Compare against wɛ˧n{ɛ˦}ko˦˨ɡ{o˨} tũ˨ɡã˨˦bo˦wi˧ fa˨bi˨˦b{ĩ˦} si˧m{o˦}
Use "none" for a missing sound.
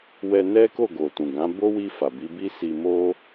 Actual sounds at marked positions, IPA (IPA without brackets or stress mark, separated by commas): ɛ˦, o˨, i˦, o˦